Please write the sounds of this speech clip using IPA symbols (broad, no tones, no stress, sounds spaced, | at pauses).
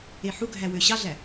e ħ u ɡʱ æ w ø ɕ ɑ ɮ æ